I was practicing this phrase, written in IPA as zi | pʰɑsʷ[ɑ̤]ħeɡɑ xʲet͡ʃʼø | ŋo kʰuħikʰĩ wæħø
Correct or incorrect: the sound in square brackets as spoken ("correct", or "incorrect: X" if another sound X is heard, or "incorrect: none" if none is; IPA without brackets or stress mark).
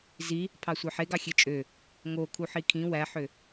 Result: incorrect: ɑ